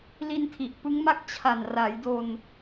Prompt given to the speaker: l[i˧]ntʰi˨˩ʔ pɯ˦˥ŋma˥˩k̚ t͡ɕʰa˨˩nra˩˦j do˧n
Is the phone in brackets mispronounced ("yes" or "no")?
no